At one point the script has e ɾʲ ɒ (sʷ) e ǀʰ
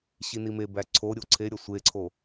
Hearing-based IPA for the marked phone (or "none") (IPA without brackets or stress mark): sʷ